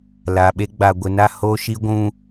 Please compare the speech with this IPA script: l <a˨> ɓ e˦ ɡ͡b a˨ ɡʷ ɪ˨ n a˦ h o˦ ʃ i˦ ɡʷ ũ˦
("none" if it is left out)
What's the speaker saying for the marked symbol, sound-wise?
a˨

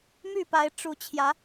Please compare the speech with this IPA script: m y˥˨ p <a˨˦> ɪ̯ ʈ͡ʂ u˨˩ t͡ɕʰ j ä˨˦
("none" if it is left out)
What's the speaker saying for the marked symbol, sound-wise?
a˨˦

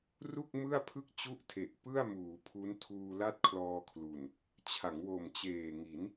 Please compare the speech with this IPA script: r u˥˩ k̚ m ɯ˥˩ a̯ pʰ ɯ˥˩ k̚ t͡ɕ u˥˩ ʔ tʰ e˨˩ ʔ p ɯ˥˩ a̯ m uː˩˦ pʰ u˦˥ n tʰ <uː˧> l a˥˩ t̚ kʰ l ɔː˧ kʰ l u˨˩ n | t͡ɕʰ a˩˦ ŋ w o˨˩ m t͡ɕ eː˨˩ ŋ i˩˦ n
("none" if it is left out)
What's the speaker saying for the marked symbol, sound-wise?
uː˧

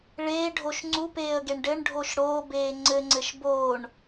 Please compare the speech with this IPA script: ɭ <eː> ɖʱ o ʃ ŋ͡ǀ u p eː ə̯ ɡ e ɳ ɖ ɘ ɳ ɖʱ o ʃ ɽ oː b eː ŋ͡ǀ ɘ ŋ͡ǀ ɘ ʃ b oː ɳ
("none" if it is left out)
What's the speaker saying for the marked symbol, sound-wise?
eː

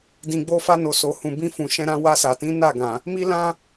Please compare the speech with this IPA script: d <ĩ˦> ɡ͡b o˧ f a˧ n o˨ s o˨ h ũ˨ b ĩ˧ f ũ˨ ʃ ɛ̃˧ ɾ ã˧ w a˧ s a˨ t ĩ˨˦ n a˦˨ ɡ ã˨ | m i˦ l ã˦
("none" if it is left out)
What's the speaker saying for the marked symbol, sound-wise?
ĩ˨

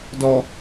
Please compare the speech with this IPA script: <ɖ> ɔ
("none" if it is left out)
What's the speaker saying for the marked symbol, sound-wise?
d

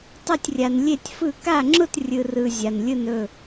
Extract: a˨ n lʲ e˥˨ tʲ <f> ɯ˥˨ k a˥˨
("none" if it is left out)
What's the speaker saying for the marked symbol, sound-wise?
f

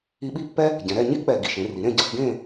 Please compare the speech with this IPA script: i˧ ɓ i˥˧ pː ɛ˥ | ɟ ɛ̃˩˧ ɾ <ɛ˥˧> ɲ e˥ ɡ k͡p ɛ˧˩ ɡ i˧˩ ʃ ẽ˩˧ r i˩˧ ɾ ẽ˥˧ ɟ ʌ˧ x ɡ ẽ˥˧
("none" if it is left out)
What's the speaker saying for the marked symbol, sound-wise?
ɛ˥˧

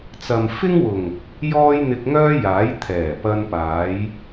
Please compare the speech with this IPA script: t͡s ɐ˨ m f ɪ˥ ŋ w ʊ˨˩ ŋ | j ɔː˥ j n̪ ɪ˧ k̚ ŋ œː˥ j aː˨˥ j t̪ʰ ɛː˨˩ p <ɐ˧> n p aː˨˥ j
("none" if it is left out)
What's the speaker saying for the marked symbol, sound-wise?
ɐ˧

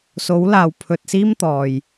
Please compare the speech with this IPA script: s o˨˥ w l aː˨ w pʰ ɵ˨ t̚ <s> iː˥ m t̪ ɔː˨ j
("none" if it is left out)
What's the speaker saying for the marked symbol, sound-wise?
s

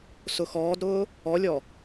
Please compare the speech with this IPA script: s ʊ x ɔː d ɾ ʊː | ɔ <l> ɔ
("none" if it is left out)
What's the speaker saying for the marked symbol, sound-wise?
lʲ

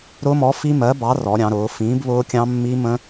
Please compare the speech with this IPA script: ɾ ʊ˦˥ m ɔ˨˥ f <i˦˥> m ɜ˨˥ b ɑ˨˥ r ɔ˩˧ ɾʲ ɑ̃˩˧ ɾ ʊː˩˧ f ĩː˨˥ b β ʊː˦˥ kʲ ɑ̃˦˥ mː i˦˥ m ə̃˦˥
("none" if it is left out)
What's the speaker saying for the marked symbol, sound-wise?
i˦˥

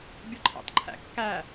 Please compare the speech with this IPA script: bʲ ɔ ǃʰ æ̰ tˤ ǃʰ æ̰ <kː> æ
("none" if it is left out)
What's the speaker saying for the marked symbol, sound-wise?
kː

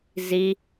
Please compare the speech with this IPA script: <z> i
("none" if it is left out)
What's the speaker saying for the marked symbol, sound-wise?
z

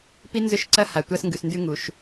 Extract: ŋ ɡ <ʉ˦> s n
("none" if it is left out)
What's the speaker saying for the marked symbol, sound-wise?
ʉ˨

